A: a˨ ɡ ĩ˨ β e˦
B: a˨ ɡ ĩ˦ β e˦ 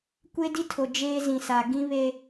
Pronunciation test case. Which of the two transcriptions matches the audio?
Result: B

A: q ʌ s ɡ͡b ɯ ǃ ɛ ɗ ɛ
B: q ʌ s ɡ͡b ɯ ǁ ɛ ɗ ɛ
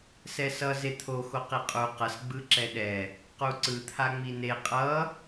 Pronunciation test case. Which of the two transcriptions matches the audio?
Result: B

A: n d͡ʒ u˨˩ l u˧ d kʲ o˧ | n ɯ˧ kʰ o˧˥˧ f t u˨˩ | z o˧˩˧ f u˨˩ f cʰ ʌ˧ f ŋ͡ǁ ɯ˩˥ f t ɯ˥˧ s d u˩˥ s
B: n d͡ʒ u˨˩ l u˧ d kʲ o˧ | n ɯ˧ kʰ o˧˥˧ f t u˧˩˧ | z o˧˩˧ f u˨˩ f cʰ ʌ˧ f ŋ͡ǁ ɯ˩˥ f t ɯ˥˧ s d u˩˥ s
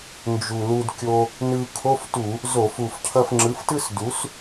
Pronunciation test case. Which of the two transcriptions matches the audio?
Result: B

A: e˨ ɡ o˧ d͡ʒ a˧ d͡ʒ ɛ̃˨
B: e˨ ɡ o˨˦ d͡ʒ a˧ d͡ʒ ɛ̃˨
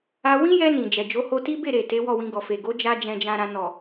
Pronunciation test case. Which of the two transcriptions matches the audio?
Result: B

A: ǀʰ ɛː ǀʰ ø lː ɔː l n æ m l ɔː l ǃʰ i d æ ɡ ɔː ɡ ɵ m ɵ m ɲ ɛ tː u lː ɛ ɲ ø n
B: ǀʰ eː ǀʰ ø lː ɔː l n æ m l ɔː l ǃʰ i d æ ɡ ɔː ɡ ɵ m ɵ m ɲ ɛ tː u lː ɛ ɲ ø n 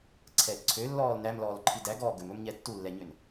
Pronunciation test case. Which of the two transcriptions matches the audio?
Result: A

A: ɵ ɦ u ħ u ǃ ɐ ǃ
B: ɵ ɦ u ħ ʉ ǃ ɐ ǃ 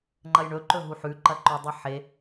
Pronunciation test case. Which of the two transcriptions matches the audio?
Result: B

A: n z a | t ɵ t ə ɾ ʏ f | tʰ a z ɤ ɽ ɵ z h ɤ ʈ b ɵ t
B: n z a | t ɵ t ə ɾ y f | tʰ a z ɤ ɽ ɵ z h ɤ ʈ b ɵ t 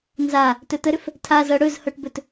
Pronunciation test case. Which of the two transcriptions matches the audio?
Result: A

